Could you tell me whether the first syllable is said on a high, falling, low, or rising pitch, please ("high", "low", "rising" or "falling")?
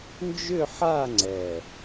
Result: falling